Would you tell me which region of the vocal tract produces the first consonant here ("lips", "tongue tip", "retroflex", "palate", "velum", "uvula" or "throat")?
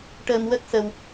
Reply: retroflex